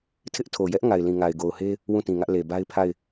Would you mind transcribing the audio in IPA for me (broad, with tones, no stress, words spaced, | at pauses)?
tʰɪ˦ʔtʰo˨jɛ˦ʔ ŋa˨ɪ̯lĩ˨ ŋa˨ɪ̯ɡo˨ʊ̯he˦ | wũ˦˨tĩ˨ŋä˦ʔ le˨ba˦ɪ̯pʰa˦˨ɪ̯